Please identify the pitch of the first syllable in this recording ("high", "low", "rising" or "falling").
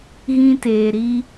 high